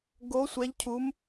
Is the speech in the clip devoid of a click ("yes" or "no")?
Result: yes